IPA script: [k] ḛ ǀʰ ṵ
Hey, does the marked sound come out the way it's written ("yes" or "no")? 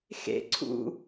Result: no